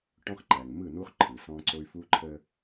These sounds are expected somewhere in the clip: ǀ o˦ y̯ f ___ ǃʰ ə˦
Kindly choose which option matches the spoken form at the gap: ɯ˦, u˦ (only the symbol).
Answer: u˦